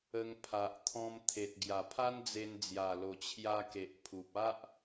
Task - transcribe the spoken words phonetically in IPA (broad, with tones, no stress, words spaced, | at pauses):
ə˧ŋpʰa˨ʔ t̪ʰɔ̃˧m t̪ʰe˨t̚ ɡja˨˩pʰa˦nd͡ze˧n d͡zja˨˩lo˨˩t͡ɕʰja˧ ke˨ʔpʰu˨p̚ a˦ʔ